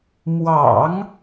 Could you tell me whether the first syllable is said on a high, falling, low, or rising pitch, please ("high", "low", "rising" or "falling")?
low